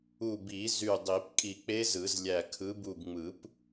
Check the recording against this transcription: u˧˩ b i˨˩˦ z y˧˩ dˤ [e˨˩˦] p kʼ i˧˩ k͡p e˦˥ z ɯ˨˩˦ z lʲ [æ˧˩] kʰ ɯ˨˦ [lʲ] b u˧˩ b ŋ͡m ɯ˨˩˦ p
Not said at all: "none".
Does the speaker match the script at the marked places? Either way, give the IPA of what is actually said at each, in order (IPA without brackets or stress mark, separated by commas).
i˨˩˦, æ˧˩, none